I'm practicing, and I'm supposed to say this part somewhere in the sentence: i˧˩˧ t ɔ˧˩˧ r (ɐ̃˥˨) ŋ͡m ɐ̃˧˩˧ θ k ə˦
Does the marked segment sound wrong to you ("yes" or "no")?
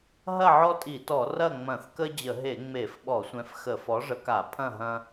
yes